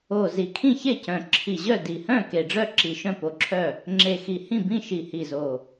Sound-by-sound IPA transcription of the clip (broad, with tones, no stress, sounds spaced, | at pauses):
o˨˩ z i˨˩ kʰ ĩ˥˨ ç e˥˨ c œ̃˨˩ ǁʰ i˨˩ ʑ œ˥˨ d i˨˩ h œ̃˥˨ k e˨˩ ɖ͡ʐ œ˥˨ ǁ i˨˩ ʃ œ̃˥˨ p o˨˩ ǁʰ œ˥˨ | ŋ͡ǁ e˨˩ x i˨˩ h ĩ˥˨ b ĩ˥˨ ʃ i˨˩ h i˨˩ z o˨˩